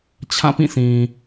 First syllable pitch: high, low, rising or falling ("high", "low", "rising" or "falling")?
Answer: falling